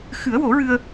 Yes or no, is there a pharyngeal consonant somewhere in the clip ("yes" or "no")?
no